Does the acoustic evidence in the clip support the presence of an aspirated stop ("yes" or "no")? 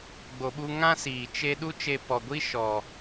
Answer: no